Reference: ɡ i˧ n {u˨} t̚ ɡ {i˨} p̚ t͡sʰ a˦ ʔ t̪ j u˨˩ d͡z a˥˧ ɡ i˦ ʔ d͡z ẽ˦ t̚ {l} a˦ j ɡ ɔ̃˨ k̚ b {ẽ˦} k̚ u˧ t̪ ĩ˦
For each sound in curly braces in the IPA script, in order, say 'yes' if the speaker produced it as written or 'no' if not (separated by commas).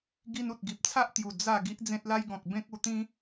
yes, yes, yes, yes